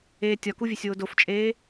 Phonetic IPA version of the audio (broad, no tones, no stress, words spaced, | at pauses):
eːtʲɒkuvʲesʲ wodoft͡ʃʼeː